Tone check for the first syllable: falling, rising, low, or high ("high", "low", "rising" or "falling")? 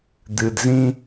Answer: low